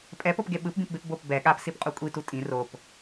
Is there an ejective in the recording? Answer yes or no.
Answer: yes